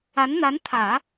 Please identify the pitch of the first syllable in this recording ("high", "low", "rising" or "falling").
rising